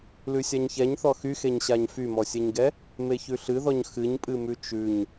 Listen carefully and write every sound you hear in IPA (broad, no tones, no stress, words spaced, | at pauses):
lʉsʲaɲçɛɲθɔ xyxeɲɕaɲ fymɔsʲɛɲɡɛ | meçʉɬɨðɔɲ xɨɲpʼɨmʉ t͡ʃʉɲ